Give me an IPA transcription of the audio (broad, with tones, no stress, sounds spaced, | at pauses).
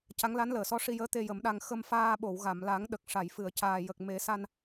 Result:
c a˧˥ ŋ l a˧˥ n l əː˨˩˨ s ɔ˧˥ ʂ i˧ j əː˧˥ t̪ e˧ j ə˨˩˦ m ɗ a˧ ŋ x ə˧ m f aː˧ ɓ o˨˩˨ w ɣ a˨˩˨ m l a˨˩˦ ŋ ɗ ə˨˩ k̚ ʂ a˨˩˨ j f ɨ˨˩˨ ə̯ c aː˨˩ j ə˨˩ k̚ m e˨˩˦ s a˧ n